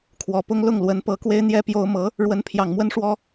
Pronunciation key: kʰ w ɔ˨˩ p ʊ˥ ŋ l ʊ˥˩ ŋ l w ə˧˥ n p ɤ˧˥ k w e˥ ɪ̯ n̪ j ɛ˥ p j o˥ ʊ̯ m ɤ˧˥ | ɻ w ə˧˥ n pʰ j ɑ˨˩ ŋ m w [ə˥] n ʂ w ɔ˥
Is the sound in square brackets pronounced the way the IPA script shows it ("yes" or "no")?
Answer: yes